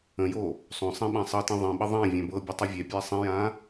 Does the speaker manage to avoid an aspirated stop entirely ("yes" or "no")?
yes